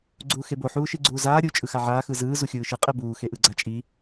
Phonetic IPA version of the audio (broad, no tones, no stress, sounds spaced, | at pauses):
ɡ͡ǀ uː x e b o ħ uː ʃ i ɡ͡ǀ uː z aː ɾʲ u t͡ʃʼ ɯ x a ʕ aː x ɯ z ɯː z u xʲ ɯː ʃ ɯ qʼ ɛ b uː x e ʔ ɯ ɡ͡ǀ a t͡ʃʼ i